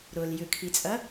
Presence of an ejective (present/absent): present